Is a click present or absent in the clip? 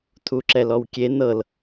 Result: present